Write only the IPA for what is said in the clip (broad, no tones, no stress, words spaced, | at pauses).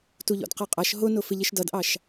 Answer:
tuʎɔ̰dqɛqʼʌʃ ɦʊnʊ fɪʎɪʃdʌdʔɑʃ